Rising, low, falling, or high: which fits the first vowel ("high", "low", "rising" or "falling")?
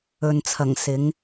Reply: low